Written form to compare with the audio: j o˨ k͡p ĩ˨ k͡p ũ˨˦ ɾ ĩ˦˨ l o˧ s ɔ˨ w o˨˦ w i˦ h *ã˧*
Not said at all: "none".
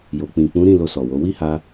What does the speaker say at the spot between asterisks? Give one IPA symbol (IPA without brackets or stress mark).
a˧